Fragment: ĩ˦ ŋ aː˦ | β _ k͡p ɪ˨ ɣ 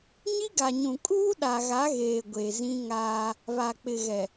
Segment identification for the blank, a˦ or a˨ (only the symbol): a˨